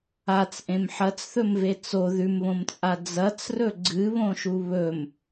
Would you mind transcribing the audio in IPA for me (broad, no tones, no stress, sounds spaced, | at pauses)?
a t͡s ʔ ẽ m ħ ɐ t͡s θ ɵ m v e t͡s o ð ʉ m β õ m t͡sʼ a d͡z ɐ t͡s r ɵ ɡ͡ǀ ɨ β õ ʃ u β ɵ m